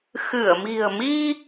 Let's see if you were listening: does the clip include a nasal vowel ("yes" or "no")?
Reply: no